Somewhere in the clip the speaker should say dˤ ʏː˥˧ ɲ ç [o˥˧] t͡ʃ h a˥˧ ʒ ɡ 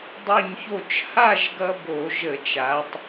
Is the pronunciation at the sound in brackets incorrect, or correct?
correct